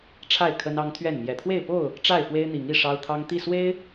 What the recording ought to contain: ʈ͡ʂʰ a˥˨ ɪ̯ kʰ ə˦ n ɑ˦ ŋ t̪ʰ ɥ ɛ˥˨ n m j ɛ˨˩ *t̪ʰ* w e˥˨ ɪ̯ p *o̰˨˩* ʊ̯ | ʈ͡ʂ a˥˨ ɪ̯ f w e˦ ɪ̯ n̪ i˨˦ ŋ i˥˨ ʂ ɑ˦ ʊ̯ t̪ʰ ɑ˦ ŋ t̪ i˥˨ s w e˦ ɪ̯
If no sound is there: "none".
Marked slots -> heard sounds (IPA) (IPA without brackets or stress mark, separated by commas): t̪ʰ, o˥˨